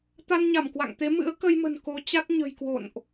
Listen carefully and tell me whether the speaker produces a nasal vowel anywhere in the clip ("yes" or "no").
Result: no